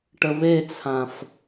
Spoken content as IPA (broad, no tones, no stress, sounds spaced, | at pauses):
ʈ ə β e t͡sʰ ã f